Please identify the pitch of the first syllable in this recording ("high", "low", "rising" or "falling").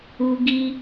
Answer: high